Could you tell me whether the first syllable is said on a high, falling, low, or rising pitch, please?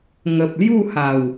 low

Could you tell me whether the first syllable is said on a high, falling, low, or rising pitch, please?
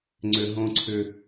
low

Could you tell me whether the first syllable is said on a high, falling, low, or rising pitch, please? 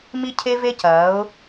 high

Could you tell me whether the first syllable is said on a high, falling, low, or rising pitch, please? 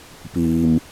low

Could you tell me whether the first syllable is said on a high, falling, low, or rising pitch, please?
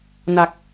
low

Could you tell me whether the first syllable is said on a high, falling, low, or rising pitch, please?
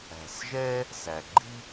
low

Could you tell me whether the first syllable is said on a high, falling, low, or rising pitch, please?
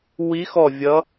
rising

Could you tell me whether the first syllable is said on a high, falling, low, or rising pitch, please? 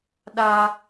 high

